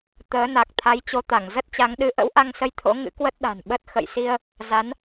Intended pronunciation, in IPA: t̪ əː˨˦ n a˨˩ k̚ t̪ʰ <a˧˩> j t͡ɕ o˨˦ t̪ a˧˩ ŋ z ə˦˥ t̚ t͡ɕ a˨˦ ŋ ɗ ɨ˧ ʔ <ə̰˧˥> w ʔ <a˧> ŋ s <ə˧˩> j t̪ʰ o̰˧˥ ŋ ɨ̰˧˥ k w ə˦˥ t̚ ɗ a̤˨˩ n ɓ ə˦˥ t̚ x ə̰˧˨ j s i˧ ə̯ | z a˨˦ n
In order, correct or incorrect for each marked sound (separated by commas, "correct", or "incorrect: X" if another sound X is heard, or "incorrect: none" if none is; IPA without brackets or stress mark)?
incorrect: a˨˦, correct, correct, incorrect: ə˧